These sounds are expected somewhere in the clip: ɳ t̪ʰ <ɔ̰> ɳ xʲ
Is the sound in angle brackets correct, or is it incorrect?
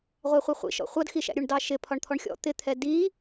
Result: incorrect